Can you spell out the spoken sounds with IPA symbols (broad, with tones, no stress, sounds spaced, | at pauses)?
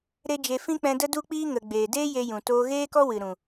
ɾ e˦ d͡ʒ e˧ f ĩ˦ k͡p ɛ̃˧ d ə˦ d u˦ k͡p iː˦ ŋ ə˨ ɡ͡b eː˨ d eː˦ j e˧ j ũ˨ t oː˧ ɣ eː˦ k ɔ˦ w ɨ˨ ɾ ũ˨